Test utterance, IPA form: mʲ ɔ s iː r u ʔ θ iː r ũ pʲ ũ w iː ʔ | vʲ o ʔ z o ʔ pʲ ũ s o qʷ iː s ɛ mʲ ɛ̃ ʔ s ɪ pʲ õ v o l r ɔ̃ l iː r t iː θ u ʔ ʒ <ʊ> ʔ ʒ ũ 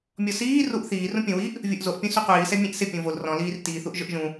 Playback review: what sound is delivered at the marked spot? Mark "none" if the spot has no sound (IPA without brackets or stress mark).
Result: ʊ